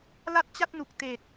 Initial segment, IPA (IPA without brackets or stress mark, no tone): l